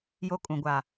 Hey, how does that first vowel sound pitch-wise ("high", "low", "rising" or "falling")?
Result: high